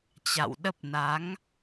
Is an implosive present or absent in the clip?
present